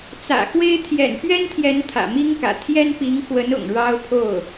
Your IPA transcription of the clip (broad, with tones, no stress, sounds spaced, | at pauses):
t͡s ä̰˨˩ x w e˥ ɪ̯ t̪ʰ j ɛ̰˨˩ n p ɥ ɛ˥ n t̪ʰ j ɛ˧˥ n t̪ʰ ä̰˨˩ m i˥ ŋ k ä̰˨˩ t̪ʰ j ɛ˥ n p i˧˥ ŋ x w ə˧˥ n ʊ̰˨˩ ŋ ɻ ɑ˥ ʊ̯ pʰ o˥˩ ʊ̯